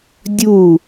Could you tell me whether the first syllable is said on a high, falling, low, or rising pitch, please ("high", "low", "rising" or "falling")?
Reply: falling